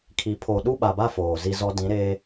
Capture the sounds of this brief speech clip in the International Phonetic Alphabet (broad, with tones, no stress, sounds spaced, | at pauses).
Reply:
kʰ i˨ pʰ o˨ ɗ u˦ ɓ a˨ b a˦ f oː˨ z i˦ z ɔ˦ d ĩ˨˦ ɾ eː˦